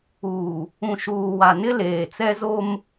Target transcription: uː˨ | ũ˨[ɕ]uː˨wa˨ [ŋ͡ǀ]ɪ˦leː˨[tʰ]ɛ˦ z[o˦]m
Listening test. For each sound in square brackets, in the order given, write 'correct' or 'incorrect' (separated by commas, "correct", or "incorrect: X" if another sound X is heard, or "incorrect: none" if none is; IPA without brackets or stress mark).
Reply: incorrect: ʃ, incorrect: n, incorrect: t͡s, correct